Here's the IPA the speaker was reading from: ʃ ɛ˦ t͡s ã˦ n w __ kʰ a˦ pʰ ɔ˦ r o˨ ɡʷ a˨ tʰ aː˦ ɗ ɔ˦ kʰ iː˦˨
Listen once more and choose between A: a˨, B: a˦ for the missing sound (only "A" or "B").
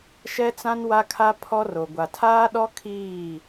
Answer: B